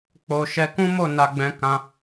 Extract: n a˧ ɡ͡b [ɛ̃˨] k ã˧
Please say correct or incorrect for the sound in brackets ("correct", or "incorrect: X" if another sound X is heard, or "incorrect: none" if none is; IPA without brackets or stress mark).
incorrect: ɛ̃˧